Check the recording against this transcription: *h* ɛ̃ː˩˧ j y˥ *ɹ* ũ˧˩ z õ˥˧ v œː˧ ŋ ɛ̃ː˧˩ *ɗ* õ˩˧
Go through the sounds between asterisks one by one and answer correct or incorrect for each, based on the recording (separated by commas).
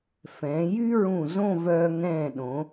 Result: incorrect, correct, correct